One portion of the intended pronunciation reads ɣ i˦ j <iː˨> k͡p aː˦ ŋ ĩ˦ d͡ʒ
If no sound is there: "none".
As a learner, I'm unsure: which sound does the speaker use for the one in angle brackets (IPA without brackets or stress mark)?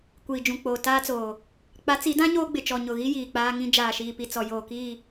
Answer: iː˨